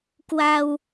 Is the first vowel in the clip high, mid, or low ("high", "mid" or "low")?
low